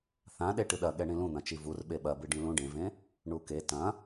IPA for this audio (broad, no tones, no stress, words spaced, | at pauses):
θãɗe ʈɨɗɐɠɛ ɳĩlũn̪ɐ̃t͡ʃi vurɓe ɓɐ bɨɖĩlũ ɖẽvẽ | ɳuke tɐ̃